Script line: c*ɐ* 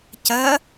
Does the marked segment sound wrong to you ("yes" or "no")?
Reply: no